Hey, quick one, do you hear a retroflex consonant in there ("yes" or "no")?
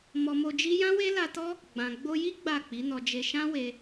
no